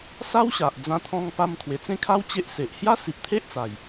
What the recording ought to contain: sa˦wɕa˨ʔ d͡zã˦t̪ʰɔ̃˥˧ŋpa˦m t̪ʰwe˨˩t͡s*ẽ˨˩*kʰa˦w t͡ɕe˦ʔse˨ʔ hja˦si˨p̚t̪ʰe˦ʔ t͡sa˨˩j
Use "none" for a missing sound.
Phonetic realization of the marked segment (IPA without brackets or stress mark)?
ẽ˥˧